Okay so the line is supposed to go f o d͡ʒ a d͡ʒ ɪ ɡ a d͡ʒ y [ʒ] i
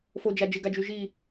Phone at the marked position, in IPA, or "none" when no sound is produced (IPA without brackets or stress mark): ʒ